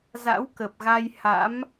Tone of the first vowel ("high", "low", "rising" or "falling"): rising